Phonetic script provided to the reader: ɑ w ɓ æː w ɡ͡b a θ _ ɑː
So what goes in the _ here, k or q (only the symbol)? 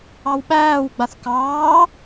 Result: k